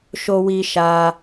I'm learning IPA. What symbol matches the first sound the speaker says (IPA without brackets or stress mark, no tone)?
ʃ